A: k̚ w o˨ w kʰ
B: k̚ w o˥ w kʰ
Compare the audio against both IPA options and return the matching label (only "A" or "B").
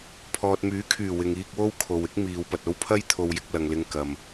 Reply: B